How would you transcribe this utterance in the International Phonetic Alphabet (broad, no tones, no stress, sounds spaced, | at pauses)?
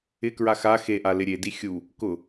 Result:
ɪ k ɹ a x a x e ʔ a l ɪ ɾʲ e d i xʲ u | k ʊ